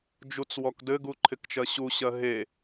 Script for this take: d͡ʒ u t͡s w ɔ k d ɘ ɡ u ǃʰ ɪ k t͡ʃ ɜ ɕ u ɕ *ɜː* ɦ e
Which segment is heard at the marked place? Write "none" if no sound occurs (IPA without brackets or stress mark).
ɜ